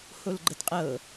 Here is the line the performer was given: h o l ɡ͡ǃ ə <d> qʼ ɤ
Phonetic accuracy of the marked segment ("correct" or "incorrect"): correct